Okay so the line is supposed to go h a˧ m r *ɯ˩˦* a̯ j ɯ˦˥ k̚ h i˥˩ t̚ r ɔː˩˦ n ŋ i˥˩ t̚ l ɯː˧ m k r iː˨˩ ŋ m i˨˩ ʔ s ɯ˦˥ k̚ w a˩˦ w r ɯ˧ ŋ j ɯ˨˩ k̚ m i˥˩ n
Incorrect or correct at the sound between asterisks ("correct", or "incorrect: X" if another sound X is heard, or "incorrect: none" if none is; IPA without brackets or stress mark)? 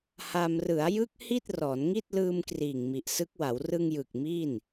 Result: correct